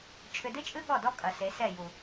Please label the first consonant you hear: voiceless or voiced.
voiceless